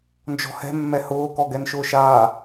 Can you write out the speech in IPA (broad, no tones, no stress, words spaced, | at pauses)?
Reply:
nd͡ʒɔ̤hɛ̤mːɛ hʊːkɔɡɛnʃʊːʃ a